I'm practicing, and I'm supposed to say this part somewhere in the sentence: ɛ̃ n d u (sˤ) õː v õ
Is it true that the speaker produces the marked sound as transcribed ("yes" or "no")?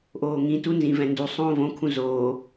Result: yes